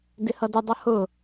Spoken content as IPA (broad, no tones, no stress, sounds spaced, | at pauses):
d ɪ h ʌ d ə dˤ ʌ h ʊ